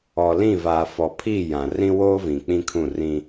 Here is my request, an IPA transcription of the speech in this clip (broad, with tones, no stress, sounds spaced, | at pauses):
ɔ˨ l ĩ˦˨ v aː˨ f ɔ˨ pʰ i˦˨ j ã˨ r ĩ˦ w oː˦ v ĩ˨ k͡p ĩ˦ kʰ ũ˦˨ r ĩ˦